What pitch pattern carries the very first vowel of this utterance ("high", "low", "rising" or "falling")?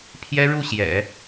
high